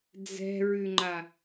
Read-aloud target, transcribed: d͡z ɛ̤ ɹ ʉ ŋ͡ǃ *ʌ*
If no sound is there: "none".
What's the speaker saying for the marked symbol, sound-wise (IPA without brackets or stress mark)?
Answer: a